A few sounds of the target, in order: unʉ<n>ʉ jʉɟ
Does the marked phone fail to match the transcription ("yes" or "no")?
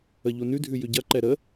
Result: yes